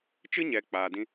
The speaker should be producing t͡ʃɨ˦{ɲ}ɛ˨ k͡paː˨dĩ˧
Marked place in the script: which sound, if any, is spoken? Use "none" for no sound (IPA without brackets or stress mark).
ɲ